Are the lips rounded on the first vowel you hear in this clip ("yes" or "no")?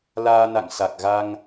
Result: no